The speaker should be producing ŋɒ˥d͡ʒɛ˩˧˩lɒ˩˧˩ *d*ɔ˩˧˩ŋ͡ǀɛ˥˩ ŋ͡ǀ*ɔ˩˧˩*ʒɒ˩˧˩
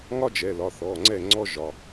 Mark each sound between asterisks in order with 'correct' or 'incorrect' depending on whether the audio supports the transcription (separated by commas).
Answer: incorrect, incorrect